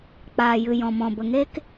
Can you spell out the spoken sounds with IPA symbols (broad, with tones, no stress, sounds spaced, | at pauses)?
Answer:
k͡p aː˨ j ɨ˨ j ɔ̃˨ m ɔ̃˨ b ə˨ ŋ e˦ k